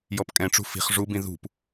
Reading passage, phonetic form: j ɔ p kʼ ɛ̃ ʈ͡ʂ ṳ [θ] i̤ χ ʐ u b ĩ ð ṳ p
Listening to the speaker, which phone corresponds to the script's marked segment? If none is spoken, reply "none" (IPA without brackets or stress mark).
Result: f